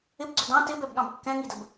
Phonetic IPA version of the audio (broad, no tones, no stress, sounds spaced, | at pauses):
ɪ b ɡ͡ǀ ʊ d ɑ̃ t ɪ b ɛ b ɠ ɑ̃ b kː ɛ̃ ŋ i d ə b